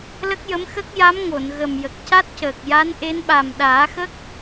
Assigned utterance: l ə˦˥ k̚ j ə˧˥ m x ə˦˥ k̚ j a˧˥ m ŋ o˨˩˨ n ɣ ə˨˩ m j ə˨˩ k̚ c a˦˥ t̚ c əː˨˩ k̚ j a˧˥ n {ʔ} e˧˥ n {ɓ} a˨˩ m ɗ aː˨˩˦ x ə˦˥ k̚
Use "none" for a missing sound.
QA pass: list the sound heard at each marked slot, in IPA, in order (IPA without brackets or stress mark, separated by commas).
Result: ʔ, ɓ